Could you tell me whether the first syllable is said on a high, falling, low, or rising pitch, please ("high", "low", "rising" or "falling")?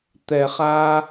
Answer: low